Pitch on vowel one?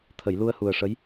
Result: low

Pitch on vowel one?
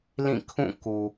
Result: falling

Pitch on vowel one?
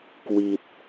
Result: low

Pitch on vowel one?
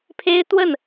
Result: high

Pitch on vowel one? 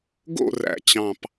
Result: falling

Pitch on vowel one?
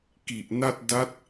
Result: low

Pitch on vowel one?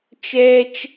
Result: high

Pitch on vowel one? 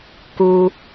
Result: high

